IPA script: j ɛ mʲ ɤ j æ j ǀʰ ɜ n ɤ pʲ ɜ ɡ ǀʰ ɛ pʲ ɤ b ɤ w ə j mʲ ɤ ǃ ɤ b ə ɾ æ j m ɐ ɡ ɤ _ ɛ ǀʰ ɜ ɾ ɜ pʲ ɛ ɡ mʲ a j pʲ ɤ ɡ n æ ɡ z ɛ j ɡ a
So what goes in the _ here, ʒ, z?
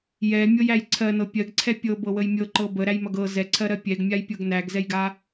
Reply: z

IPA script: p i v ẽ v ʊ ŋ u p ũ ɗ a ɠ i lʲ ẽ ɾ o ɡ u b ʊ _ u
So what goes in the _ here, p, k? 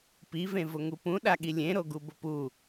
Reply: p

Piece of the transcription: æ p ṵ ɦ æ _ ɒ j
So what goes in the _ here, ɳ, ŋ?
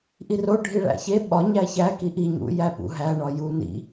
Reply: ɳ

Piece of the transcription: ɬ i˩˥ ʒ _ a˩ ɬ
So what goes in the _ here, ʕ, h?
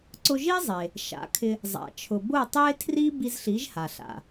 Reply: h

